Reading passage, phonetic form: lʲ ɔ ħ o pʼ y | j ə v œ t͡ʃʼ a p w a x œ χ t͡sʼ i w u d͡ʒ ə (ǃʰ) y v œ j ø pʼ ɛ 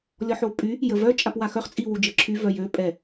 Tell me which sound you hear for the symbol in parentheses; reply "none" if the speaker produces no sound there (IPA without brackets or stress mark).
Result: ǁʰ